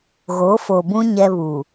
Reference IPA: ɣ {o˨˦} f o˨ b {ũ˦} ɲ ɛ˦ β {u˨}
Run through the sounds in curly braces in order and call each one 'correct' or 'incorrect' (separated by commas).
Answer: correct, correct, correct